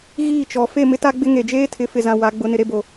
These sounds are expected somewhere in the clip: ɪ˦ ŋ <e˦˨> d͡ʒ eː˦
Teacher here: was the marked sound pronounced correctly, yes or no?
no